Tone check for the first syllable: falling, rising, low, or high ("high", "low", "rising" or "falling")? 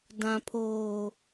low